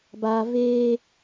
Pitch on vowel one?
low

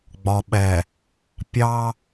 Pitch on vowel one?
low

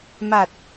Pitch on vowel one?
low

